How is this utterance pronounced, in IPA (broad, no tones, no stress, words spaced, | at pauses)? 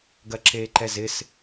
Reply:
ɡɐǁeːǃɛzɪs